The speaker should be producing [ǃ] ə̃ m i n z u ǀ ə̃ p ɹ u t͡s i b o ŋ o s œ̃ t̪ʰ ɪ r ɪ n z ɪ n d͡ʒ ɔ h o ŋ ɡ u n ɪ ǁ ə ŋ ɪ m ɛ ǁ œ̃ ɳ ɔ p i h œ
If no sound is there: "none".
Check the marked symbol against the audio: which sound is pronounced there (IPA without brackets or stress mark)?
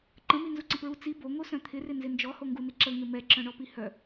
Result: ǃ